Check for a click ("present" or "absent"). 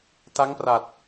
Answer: absent